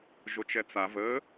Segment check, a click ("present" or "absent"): absent